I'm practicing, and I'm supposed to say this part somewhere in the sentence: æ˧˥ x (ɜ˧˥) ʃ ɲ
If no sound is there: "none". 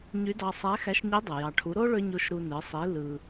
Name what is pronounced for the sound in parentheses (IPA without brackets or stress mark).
æ˧˥